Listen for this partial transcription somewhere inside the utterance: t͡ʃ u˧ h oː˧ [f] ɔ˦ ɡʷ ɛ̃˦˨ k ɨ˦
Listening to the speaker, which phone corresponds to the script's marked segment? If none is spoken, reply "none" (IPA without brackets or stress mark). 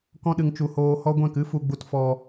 h